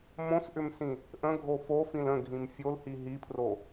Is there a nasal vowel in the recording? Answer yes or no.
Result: yes